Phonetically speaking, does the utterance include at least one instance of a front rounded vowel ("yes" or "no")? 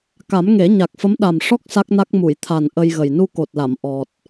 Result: no